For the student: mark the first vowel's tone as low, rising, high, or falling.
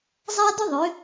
high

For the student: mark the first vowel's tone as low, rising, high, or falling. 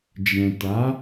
low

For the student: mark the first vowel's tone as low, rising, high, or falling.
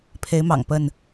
rising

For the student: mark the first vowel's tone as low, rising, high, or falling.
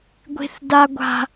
high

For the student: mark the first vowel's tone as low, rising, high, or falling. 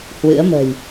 rising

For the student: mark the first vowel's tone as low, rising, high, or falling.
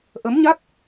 rising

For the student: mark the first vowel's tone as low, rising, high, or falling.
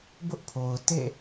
high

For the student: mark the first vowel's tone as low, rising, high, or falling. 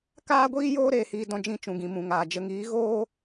high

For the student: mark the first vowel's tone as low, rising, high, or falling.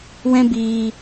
high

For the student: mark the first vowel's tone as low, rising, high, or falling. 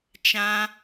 high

